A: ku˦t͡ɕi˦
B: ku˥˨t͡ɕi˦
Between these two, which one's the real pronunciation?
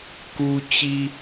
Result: A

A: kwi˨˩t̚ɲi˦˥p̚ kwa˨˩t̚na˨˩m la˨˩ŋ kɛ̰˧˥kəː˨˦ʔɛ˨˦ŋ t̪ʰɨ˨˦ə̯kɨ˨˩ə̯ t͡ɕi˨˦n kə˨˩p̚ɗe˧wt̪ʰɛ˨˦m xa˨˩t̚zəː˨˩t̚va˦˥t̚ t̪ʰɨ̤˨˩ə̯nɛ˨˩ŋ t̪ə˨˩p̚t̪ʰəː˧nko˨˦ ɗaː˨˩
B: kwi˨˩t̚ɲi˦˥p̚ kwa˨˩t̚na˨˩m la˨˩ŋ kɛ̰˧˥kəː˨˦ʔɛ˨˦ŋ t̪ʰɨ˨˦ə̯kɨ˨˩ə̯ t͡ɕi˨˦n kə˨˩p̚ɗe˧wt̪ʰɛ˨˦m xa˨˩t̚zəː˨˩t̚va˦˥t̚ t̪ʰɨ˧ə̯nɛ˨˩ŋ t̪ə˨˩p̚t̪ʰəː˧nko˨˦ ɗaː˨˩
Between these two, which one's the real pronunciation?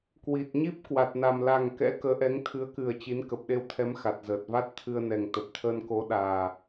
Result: B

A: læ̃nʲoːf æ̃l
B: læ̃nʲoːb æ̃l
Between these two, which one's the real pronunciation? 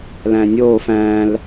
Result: A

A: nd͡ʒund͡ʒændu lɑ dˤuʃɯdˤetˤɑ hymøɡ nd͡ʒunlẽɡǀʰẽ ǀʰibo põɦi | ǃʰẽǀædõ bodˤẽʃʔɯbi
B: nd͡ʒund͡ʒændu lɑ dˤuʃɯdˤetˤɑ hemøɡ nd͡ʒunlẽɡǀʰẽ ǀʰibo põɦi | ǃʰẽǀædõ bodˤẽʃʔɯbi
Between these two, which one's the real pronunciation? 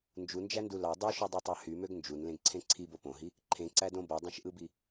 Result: A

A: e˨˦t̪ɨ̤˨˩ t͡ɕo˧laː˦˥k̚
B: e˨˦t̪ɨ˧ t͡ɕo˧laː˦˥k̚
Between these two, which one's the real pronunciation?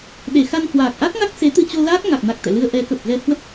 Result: B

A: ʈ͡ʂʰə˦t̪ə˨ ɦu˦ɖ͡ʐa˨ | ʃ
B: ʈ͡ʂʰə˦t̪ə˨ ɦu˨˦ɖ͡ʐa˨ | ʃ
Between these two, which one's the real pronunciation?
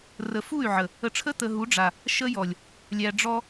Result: B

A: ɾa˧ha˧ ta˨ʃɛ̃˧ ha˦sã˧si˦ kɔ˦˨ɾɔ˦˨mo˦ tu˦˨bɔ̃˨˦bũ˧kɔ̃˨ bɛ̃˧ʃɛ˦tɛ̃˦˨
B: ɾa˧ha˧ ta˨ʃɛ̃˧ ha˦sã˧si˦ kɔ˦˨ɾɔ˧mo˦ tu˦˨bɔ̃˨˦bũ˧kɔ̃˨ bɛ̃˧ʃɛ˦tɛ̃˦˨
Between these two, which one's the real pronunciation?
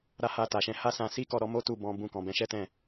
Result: B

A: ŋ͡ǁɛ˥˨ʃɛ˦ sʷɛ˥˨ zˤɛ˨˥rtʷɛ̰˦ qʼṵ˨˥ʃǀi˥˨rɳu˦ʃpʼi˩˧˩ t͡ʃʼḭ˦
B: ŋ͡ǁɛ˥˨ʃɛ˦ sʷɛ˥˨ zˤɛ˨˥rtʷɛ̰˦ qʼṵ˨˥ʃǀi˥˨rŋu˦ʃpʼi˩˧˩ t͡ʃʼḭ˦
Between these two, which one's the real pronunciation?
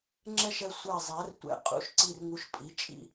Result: B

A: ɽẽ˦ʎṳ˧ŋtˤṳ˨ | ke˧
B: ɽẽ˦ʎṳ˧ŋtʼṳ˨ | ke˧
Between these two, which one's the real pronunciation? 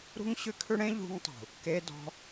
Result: A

